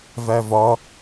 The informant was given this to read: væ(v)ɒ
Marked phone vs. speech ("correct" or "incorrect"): correct